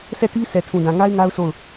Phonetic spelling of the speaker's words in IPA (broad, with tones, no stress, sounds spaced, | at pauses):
s ɛ˦˨ t i˦ s ɛ˨ tʰ ũ˨ d ã˨ ŋ a˦ ɪ̯ ŋ a˦ ʊ̯ s o˦˨ ʊ̯